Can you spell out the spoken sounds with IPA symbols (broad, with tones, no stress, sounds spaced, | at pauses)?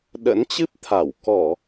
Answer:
ɗ ə̰˧˥ n t͡ɕ ɨ˦˥ p̚ t̪ʰ a˧˩ w k ɔ˧˩˨